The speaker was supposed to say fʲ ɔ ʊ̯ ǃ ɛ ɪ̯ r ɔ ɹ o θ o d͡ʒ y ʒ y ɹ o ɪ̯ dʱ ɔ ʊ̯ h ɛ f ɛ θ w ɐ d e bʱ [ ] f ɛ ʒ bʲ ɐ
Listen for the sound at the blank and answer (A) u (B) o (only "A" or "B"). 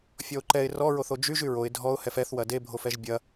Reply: B